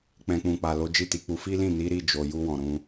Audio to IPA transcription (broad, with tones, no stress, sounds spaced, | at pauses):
k͡p ɛ̃˨ k͡p ũ˨ k͡p a˨ l o˨˦ d͡ʒ i˦˨ t i˨˦ k͡p u˧ f i˦ l ĩ˦˨ n i˨˦ ɾ i˦˨ d͡ʒ o˨ j u˧ w ɔ̃˨ ɾ ũ˧